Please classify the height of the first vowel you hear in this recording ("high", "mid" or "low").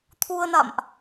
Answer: high